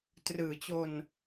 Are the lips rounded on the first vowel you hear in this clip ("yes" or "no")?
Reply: no